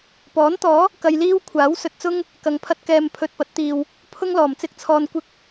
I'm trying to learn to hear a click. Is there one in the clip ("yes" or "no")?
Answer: no